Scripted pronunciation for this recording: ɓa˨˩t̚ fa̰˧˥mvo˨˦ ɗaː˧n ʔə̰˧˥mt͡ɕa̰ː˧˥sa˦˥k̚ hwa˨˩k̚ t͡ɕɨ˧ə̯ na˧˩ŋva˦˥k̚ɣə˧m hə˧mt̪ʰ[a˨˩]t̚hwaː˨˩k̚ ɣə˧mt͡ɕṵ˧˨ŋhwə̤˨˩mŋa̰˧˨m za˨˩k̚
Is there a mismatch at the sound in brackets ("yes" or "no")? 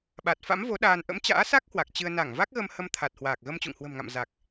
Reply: no